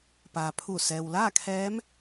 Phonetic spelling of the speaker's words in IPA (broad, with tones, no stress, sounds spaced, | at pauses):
p aː˩ pʰ uː˧˩ s ɛː˩ w l aː˥˨ kʰ ɛː˧˥ m